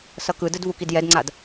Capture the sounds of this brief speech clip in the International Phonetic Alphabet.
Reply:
s ʌ k ɯ d ɯ d v u k i d j ɛ d ŋ͡ǀ a d

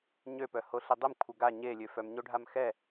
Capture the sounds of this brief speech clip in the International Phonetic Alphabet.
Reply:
ɲ ø p œ h o ɬ i dˤ i m kʷʰ ə ɡ a ɲ e lʲ ø f œ m ɲ o ɖʱ a m x ɛ

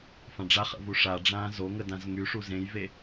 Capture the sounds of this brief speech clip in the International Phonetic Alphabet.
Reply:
f ã ɖ͡ʐ a χ ə̰ v u ʂ a ɖ͡ʐ ãː z o ŋ ə d ã z ŋ y ʂ u z ẽ j v e

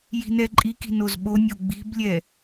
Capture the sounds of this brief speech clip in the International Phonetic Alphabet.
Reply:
j i̤ n ɛ ǃʼ i k i̤ n o z ɓ o nʲ o ɡ͡b i̤ b lʲ ɛ

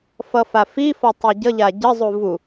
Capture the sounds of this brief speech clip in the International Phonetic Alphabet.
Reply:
f ʌ f a f i f ɔ tˤ i ɟ ʌ ʎ a ɟ ə zˤ u v u

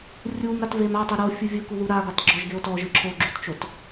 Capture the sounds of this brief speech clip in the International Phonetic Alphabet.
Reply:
rʲ u m ɾ a t v e m a tˤ e ɾ o fʲ u vʲ ɯ k u ð u ɾ a ɡ a t ɡ͡ǁ ɔ ʒ ɡ e o̯ t ɔ ʒ ɯ ǁʰ o ɡ͡ǁ u t t͡ʃ o t

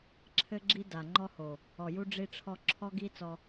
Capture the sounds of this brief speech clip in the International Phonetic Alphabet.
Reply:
ǁʰ ɘ˦ ɡ͡ǁ i˦ d a˨ ŋ͡ǃ ɔ˦ h o˨ | ɔ˨ j u˦ ɖ͡ʐ i˦ ʈ͡ʂʰ ɔ˦ ǁʰ ɔ˦ ɡ i˦ t͡s ɔ˦

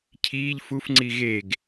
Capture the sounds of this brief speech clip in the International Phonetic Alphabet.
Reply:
cʰ iː ʎ f u f ŋ͡ǀ i ɣ e ɡ

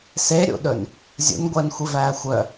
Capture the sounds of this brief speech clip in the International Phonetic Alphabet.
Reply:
s e ɾʲ ṵ ɗ ɵ n | zʲ ṵ n ɡʷ ɛː n xʷ i v æː xʷ œ

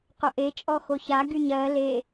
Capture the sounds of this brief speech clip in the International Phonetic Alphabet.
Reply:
q o ʔ e t͡ʃʼ ɔ x o ç a ɡ y ɲ ɜ l e

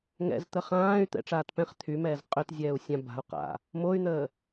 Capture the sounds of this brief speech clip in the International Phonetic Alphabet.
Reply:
ŋ ɛ̰ z t̪ ə χ ãː y̯ t̪ ɛ̰ ʈ͡ʂ aː t p ɛ̃ χ t̪ʰ y m ɛː z qʼ ø t zʲ ɛː u̯ sʲ ã b a̤ u̯ q a̰ | m o y̯ n̪ əː

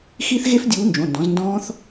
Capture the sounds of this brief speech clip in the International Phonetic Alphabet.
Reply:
x i˦˥ θ ɣ e˦˥ f dʲ uː˨˦ n d͡ʒ õ˩˧˩ n d ɔ̃˨˦ z n d ɔ̃ː˦˥ θ

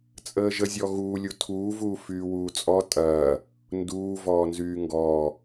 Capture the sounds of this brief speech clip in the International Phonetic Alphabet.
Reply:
t͡sʼ əː ʒ ə zʲ ɔ ɣ uː lʲ u tʰ uː v uː f yː w uː t͡sʼ ɔ tʼ ɐː | n d uː v ɔː n z yː ŋ ɡ ɔː

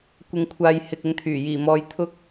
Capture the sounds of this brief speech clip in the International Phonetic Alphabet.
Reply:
kʷ ɪ˧ ŋ kʷʰ aː˧ j h ɪ˨ k̚ ɪ˨˧ ŋ t̪ʰ yː˨˩ j iː˨˩ m ɔː˨ j t̪ʰ ʊ˧ k̚

